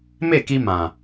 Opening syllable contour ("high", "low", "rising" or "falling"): falling